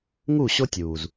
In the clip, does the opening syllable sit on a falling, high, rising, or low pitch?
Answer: falling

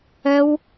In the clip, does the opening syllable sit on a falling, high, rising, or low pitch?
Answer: high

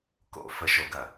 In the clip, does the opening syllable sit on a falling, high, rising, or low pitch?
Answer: high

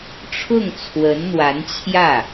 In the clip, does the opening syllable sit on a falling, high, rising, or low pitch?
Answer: falling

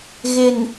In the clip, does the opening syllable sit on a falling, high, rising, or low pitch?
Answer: low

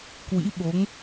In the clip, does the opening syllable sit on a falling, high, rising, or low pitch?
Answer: rising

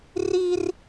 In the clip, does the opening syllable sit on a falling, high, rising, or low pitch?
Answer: high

